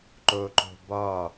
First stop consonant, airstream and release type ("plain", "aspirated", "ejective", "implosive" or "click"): click